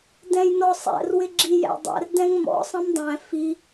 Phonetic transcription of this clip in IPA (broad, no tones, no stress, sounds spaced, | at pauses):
d ɛ̃ j n ɔ sˤ æ̰ r w ɪ ɡ͡ǁ i j æ̰ dˤ æ̰ r d ɛ̃ ŋ m ɔ̰ sˤ ə̃ m dˤ æ̃ f i